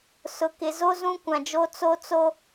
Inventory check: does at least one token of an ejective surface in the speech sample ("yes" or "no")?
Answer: no